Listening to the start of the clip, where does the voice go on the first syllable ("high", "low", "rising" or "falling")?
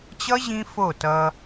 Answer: high